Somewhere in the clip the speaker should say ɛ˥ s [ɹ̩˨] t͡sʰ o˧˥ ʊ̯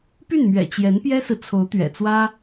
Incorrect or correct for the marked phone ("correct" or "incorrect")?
correct